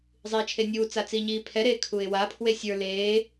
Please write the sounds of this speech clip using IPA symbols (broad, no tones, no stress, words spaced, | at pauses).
zˤiːt͡ʃʰenʲuːt͡sa t͡siːɲiːpʰɛɾeː kʰuɪ̯wapʰwe sʲə˞ leː